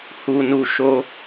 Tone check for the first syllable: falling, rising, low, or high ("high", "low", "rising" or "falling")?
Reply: low